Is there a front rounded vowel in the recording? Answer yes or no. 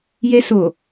no